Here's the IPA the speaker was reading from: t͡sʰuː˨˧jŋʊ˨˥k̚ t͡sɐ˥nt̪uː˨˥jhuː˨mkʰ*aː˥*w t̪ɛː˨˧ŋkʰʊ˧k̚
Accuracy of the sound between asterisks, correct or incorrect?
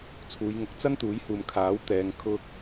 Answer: incorrect